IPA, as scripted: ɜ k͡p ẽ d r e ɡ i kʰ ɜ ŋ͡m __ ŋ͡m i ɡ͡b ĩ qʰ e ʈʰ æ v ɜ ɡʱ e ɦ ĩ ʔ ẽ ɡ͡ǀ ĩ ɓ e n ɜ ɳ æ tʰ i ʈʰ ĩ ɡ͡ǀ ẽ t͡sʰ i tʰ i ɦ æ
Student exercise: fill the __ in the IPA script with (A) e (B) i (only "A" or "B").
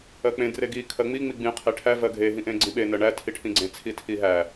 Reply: B